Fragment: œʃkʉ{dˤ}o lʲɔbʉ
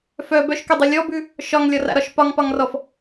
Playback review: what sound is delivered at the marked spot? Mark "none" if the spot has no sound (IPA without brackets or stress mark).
dˤ